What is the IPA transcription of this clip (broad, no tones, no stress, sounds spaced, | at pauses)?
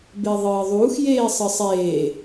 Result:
b e ðˤ ɨː ðˤ uː x j eː sˤ ɨ sˤ eː